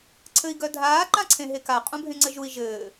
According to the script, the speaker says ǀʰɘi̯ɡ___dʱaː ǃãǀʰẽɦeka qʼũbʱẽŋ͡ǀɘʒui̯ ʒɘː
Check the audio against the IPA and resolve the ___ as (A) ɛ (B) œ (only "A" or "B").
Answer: B